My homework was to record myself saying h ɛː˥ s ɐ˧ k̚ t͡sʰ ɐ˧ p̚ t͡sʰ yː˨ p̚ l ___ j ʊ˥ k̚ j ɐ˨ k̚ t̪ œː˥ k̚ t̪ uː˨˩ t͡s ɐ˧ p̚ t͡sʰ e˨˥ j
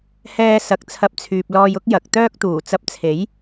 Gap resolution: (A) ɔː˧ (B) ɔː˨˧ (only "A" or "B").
A